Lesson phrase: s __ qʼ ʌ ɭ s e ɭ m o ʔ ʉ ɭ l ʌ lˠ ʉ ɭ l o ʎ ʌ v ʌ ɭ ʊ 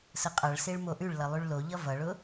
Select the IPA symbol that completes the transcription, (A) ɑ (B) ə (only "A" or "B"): B